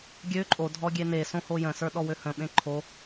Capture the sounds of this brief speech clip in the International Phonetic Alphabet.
ɡʲø ǃʼodʱɔɡʲe nesõho jə̃sə˞ɗɔwø hə̃ɓẽ ǃʰo

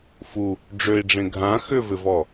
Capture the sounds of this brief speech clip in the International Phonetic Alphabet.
fu | ɖ͡ʐøi̯ɖ͡ʐẽ ɡʱã xʏvɪvɔ

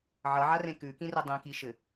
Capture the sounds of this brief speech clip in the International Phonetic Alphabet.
ʕʌʕarẽ kʉkĩre dˤĩkiʃɘ

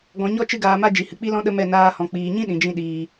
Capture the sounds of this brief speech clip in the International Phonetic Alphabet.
ɡɔ̃˧ɲɔ˦ t͡ʃɨ˦ɡaː˧ma˦ d͡ʒi˨hɨ˨k͡pi˦lɔ̃˦ ɗə˦mɛ˦˨ naː˧hɔ̃˨ k͡piː˨ɲĩ˦ ɗĩ˨d͡ʒĩ˧ ɗiː˨

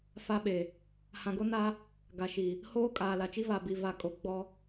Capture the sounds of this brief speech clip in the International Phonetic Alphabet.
fa˦ɓe˨ | hã˨ɡo˦na˦ | ɡa˨ʃi˨ | hoː˦ kʼaː˨la˨t͡ʃi˦ va˨bi˨va˨kʼo˨ ɡ͡bɔ˦

